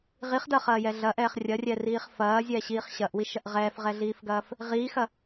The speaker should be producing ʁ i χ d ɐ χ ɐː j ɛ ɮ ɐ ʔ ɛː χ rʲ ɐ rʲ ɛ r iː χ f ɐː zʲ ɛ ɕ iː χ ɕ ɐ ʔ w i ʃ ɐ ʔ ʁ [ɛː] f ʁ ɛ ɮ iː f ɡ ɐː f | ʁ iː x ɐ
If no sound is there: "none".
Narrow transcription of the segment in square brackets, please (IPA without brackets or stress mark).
ɛː